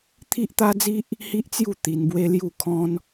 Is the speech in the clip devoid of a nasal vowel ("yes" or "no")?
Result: no